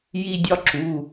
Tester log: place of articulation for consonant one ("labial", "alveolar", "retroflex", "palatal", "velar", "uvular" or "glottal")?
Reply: palatal